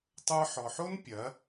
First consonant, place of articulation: alveolar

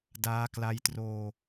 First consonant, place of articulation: alveolar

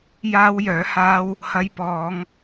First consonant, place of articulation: palatal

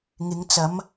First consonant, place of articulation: velar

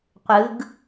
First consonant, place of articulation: uvular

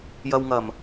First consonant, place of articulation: palatal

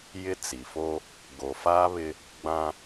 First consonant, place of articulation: palatal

